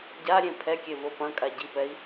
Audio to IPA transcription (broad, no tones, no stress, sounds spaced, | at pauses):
ɟ a ɾʲ ẽ pʰ ɛ kʲ e v o p ɐ̃ kʼ a ɟ i p ɛ i̯